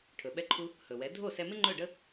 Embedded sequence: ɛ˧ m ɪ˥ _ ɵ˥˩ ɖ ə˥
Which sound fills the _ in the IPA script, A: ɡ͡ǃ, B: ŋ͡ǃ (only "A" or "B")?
B